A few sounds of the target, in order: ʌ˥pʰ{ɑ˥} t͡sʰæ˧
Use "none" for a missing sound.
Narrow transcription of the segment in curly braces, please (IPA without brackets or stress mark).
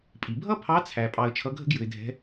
ɑ˧˥